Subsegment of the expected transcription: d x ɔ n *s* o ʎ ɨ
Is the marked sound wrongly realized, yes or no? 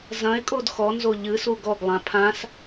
yes